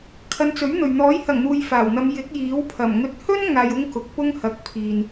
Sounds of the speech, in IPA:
kʰ ɐ˨˧ n t͡s ɵ˨˥ ɥ n̪ ɵ˨ ɥ n̪ ɔː˨˥ j h ɐ˨˩ ŋ n̪ uː˨ j f aː˨˩ w n̪ ɐ˨˧ m j ɪ˨˥ k̚ j iː˨˥ w pʰ ɐ˨˩ m ŋ ɵ˨˥ t̚ h ɵ˥ n ŋ aː˧ j ʊ˥ ŋ k ʊ˨˥ k̚ p ʊ˥ ŋ h ɐ˨˥ k̚ pʰ iː˨ n

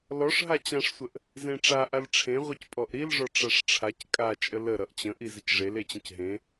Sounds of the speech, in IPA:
l ɔ ʂ ɦ a t͡ɕ ã ʂ sʷ ə ʔ | z ẽ ʈ͡ʂ a ʔ a l ʈ͡ʂʰ ẽ ʁʷ i c pʼ ɔ ʔ ɾ i l ʐ ɔ ʈ͡ʂ a ʂ ʈ͡ʂʰ a c kʼ a t͡ʃʼ ə l ə ɾ ʌ ʔ t͡ɕ ə̃ ʔ i z ə c ʐ e l e t͡ɕ ə̃ c ɦ ẽ

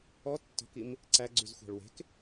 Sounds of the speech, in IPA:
ɔ tː ɔ̤ k i m | ǀ æ ɡ͡ǀ y z xʷ æ̤ ɭ w e̤ k

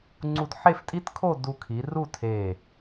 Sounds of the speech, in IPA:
ŋ͡ǀ u˧ d ħ e˥˧ f tʼ i˥ t kʰ o˥˧ d u˧ kʰ i˩˧ r u˥˧ tʰ e˧˩

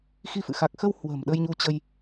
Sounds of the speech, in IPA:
x i˧ f ɨ̰˧˨ x a˨˩ k̚ x ə˧ w h w ə̤˨˩ m ɗ ə˧ j ɲ u˧ t͡ɕ ə˧ j

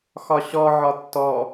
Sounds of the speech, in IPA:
x ɒ ɕ ɔ ʕ ɒ tː ɔ

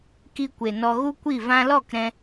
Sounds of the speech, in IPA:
k i˧ kʷ e˨ n ɔ˧ ɣ u˦ kʷ i˦˨ v ã˧ l ɔ˦˨ k ɾ ɛ̃˧

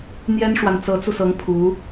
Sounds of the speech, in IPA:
n̪ j ɛ˥ n ʂ w a˨ n t͡s ɤ˧˥ t͡s u˧ s ɤ˧˥ ŋ pʰ u˧˥

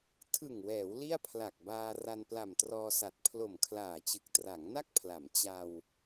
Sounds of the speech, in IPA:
tʰ ɯ˨˩ ŋ w ɛː˩˦ w l i˥˩ a̯ pʰ l a˨˩ k̚ b aː˧ r a˧ n p l a˨˩ m t r ɔː˧ s a˨˩ t̚ pʰ l o˨˩ m kʰ l aː˨˩ t͡ɕ ɯ˨˩ k̚ t r a˩˦ ŋ n a˥˩ k̚ pʰ l a˩˦ m t͡ɕ a˧ w

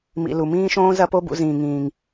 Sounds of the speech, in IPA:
m ḭ˨ l u˨ m ĩː˦ ʃ õː˦ z ɐ˦ p o˦ b ṵ˧ z ĩː˨ ŋ ĩː˨ ŋ

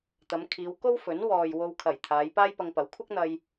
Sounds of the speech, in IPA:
t̪ ɐ˨˧ m kʰ iː˨˧ w k o˥ w f ɵ˨˥ n w ɔː˨ j w o˧ w kʰ ɐ˨˩ j t̪ʰ aː˨˧ j p aː˥ j p ɐ˧ ŋ p ɐ˨˥ w kʷʰ ɐ˥ k̚ n̪ ɐ˧ j

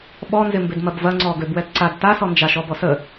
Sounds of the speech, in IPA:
ɓ ɔ n z ɪ m b ɪ d m ɐ b v ɐ ŋ͡ǀ ɔ ɡ ø b w ɛ t ǀ a d t a s ɔ n d͡ʒ a ʃ ɔ b ɔ s ə

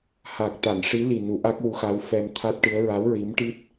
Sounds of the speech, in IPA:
h a˨˩ k̚ t̪ a˨˩˨ n ʂ i˧˥ l i˨˩ n u˨˩˦ ʔ a˦˥ k̚ w u˧˥ x a˧˥ w f ɛ˧ m t̪ʰ a˦˥ t̚ ʈ ɨ˧˥ ə̯ ɹ a˧˥ w ɹ i˧˥ m ʈ i˦˥ t̚

